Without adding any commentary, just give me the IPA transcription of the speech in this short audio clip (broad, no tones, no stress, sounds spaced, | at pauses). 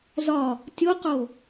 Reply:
z ɒ | tʲ o q o